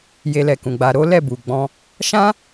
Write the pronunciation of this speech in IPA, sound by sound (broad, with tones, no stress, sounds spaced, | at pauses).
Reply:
j e˧ l ɛ˨ k ũ˨ ɡ͡b a˧ ɾ o˦ l ɛ˦˨ b u˨ ɡ͡b ɔ̃˧ | ʃ ã˦